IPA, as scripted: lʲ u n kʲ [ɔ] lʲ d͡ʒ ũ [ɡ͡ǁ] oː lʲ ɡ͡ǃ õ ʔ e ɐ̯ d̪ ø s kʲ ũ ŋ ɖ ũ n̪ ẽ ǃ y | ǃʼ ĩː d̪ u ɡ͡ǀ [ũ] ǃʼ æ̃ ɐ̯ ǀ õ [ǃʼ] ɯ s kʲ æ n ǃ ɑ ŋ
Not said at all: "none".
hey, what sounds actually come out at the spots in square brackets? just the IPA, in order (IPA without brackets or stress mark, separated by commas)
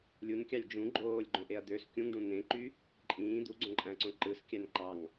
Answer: ɑ, ɡ͡ǃ, õ, ǃ